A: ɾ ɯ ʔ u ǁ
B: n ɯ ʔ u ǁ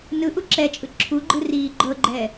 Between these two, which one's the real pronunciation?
B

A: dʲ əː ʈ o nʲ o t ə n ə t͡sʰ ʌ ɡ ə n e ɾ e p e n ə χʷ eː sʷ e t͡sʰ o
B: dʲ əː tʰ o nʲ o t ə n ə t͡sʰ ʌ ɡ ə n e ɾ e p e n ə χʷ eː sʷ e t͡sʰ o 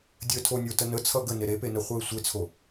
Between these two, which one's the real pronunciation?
B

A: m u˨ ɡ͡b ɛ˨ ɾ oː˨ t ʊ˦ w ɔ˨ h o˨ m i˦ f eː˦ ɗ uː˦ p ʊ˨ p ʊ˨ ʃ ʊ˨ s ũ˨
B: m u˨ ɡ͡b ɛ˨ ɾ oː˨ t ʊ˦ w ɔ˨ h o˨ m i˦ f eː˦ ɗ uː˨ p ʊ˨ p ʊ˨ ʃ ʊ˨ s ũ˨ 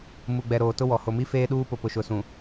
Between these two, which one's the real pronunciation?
A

